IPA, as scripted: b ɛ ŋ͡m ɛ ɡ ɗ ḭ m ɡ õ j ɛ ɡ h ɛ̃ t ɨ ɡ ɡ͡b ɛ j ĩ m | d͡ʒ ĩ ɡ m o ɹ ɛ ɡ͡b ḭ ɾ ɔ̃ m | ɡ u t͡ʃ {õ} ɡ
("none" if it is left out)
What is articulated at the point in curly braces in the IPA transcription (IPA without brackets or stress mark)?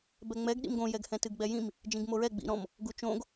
õ